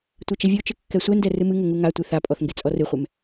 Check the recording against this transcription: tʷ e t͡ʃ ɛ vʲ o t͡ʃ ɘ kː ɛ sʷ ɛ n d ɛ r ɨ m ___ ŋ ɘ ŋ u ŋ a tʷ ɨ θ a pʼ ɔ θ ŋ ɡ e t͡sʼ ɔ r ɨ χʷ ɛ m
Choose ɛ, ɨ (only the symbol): ɨ